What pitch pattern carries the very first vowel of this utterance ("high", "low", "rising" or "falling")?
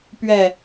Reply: falling